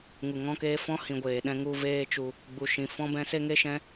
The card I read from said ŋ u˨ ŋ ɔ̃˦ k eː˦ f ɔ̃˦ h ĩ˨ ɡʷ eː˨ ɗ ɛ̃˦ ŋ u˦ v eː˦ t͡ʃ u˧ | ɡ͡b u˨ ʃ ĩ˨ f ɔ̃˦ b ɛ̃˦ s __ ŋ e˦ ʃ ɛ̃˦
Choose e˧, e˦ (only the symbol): e˦